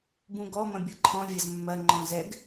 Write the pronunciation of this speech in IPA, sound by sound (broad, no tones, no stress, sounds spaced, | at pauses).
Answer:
b ũ ɡ ɔ m ɐ̃ bʲ ɤ ǃʰ ɔ̃ vʲ ɐ z mː ɐ ŋ͡ǃ ɔ̃ z ɛ ɡ